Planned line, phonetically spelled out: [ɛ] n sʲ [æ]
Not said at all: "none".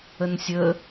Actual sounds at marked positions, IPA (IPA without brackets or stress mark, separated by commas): ə, ə